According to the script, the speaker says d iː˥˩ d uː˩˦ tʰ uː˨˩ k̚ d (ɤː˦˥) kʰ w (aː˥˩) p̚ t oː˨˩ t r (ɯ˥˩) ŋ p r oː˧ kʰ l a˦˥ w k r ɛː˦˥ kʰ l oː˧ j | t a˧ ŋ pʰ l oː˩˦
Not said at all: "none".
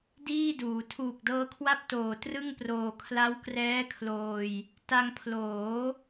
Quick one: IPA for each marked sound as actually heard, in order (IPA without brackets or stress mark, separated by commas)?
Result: ɤː˦˥, a˥˩, ɯ˥˩